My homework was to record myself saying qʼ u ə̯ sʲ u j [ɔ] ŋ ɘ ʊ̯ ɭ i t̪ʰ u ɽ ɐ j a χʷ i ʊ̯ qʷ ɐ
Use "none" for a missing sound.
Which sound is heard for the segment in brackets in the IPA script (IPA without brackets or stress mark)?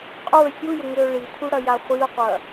ə